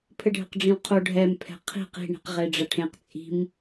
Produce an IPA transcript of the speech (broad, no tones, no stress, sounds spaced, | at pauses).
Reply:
pʰ ɘ ɖʱ ɘ q ɖ͡ʐ ĩ w qʰ o ɖʱ ɛ m pʰ ɛ̤ qʰ i̤ q i̤ ɳ i̤ q ʁ e ɖ͡ʐ ɐ ʈʰ ẽ q t͡sʼ i̤ m